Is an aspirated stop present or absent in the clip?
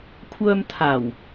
present